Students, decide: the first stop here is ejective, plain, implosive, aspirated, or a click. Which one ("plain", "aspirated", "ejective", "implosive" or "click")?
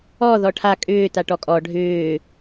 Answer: aspirated